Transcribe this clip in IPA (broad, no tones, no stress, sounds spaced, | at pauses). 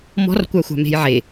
m ɔ̤ r kʷ a xʷ a̤ m e̤ j ʕ e